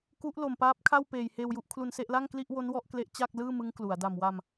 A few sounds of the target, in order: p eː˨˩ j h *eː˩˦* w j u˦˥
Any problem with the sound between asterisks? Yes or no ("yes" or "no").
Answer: yes